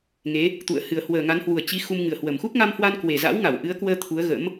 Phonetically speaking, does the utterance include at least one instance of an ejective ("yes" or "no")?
no